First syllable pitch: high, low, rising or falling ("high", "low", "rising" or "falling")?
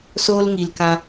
high